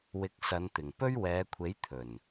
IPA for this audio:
w ɪ˨˥ k̚ s ɐ˨˧ n t̪ ɪ˨˩ ŋ p ɵ˥ ɥ w ɛː˨˧ kʷʰ e˨˥ j t̪ʰ ɵ˨˩ n

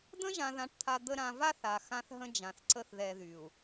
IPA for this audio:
d̪ ə̃˦ ʒ ã˨ ð ã˨ ʈ t̪ʰ a˨ d̪ ə˦ ɾ ã˨ v a˦ θ a˨ x ã˦ θ ɦ ə̃˦ d͡ʒ ã˨ θ ǀ ə˦ θ ð ɛ˨ ð y˨ u̯

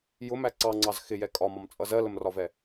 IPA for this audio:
j ʊ m æ ǀ ɑ ŋ͡ǀ ɑ z x ɪ j ɛ kʼ ɒ m ɒ m t͡sʼ ʌ z ɜ l ə m r ɒ v ɛ

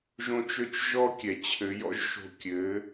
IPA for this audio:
ʒ õ˦ t͡ʃ ø˦ t͡ʃ ʒ ɔ˦ kʲ ɛ˨ t͡ɕʰ ɘ˨˦ j ɔ̰˦ ʒ ʃ o̤˦˨ kʲ ɘ˨˦

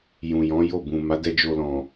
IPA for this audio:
j ũ˨ j ɔ̃˨˦ j o˦˨ b ũ˨ m a˨˦ d ɛ˧ d͡ʒ o˧ l ɔ̃˨

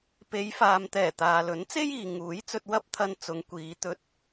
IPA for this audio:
p e˨˧ j f aː˨ m t̪ ɛː˨˩ t̪ aː˨ l ɵ˨˥ n t͡s e˥ j iː˨ ŋ uː˨˥ j t͡s ɵ˧ t̚ w ɐ˥ p̚ t̪ʰ ɐ˧ n t͡s ʊ˨˧ ŋ kʷ iː˨˧ t̪ ɵ˧ t̚

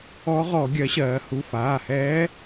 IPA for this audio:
ɔ˧˥ ʁ ɔ˧˩˧ ɡʲ ɜ˩˥ ɕ ɜː˩˧ h u˩˧˩ f aː˩˧˩ h ɛː˧˥

